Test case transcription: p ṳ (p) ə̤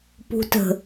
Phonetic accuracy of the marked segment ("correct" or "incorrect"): incorrect